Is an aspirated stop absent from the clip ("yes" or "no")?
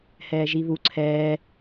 no